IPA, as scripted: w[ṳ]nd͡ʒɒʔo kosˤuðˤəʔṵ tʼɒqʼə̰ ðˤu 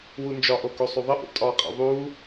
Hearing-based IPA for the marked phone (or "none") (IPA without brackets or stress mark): u